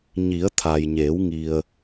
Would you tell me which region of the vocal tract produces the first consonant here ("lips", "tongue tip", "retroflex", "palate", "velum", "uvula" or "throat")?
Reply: palate